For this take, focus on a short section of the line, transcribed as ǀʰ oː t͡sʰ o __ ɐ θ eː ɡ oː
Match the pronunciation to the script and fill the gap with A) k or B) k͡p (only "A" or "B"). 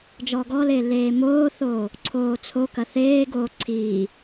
A